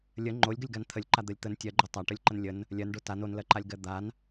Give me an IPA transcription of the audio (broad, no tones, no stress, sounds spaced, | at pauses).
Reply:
lʲ ə ŋ͡ǃ o lʲ ɡ ə lʲ ɡ a n t̪ʰ ə lʲ ǃ a d̪ ɜ lʲ t̪ ə n tʲ ɜ ɡ͡ǃ o tˤ a ʈ ə lʲ ǃ ə n lʲ ə n | lʲ ɜ n ɖ o t a n o n l ɜ ǃ a lʲ ɡ ɜ d̪ a n